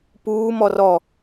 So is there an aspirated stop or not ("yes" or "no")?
no